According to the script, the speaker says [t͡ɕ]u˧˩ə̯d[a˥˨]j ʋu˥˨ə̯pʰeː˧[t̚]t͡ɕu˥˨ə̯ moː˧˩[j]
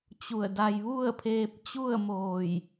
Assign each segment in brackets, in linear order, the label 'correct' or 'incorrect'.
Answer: correct, incorrect, incorrect, correct

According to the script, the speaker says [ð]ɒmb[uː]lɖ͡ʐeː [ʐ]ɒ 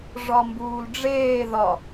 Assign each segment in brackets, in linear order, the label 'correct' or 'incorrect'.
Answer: incorrect, correct, incorrect

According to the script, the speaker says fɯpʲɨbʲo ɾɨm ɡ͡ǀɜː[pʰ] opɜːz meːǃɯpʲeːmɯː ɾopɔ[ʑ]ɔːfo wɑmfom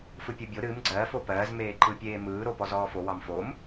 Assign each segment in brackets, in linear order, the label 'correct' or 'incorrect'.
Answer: incorrect, incorrect

